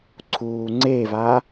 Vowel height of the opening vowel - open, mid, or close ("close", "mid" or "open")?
close